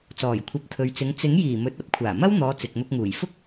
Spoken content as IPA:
t͡s ɔː˨˩ j kʷʰ ɐ˨˥ p̚ t̪ʰ ɵ˨˧ ɥ t͡s ɪ˨˧ ŋ t͡s ɪ˨˥ ŋ j iː˨˩ m ɵ˨˥ t̚ ɐ˥ p̚ kʷʰ aː˨˩ m ɐ˥ w n̪ ɔː˨˧ t͡s ɪ˨ k̚ n̪ ʊ˧ k̚ ŋ uː˨˩ j f ʊ˥ k̚

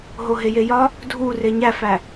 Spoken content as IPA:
ɦ o ɦ e j e j ɒ | dʱ u r e ɲ æ f æ

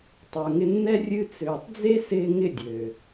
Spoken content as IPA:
tˤ ə˞˨ ŋ ɪ˧ nː ɛ˦ rʲ ɨ˧ t͡s øː˨ tˤ d͡z e˦ s ɪː˧ ŋ ɪ˦˨ dʲ øː˨

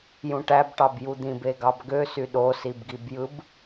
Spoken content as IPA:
j ũ ʈ æ b ʈ ɑ b j u d̪ ĩ b e ɡ ɑ b ɡ ø s y ɗ o s i b ɡ i b j ɯ b

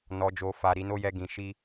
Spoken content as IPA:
n ɔ˨ d͡ʒ o˨ f a˨ ɾ i˨˦ n o˦ j ɛ˧ ɡ ĩ˨ ʃ i˧

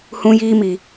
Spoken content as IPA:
h ũ˦ j iː˦ m i˨

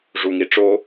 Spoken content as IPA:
ʐ u ŋ i ʈ͡ʂ o

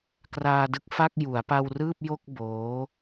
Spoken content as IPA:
k r aː˧ d ɯ˦˥ k̚ f a˥˩ k̚ j u˩˦ a̯ p a˧ w r ɯː˥˩ p̚ j o˥˩ k̚ b oː˦˥

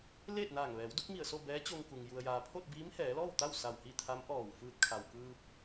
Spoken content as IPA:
l eː˥˨ t̚ n aː˧˩ ŋ ʋ ɛː˩˧ w d u˧˥ k̚ m i˧˩ ə̯ s o˥˨ b ɛː˧˥ t͡ɕ o˧ ŋ k u˩ ŋ j u˩ ə̯ j aː˩ pʰ o˥˨ t̚ b iː˧˥ m h ɛː˩˧ l ɔː˥˨ w t̪ a˥˨ w s a˧˩ w h i˥˨ t̪ʰ a˧˥ m ʔ ɔː˧˩ w f ɯː˧ t̚ kʰ a˩ w k ɯː˧ p̚

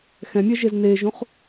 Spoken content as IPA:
x ɛ̃ mʲ ɛ ʒ e z n eː ʒ ũ χ

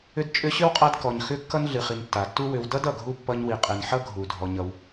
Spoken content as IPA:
ʏ˦ d t͡ʃʼ ʏ˦ ɕ ʏ˥ w qʼ a˦ d k ɔ˩ ɲ x ʏ˦ kː ʌ˥ n ɮ ɨ˨ χ i˨ n tː a˩ tː u˥ w ʏ˨ w d ʌ˥ d ʌ˩ ɡʱ u˥ pː ʌ˦ ɲ w i˨ qʼ e˨ n ħ ʌ˥ ɡʱ u˩ dʱ ɔ˨ ɲ ʌ˨ w

